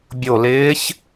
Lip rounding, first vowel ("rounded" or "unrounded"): rounded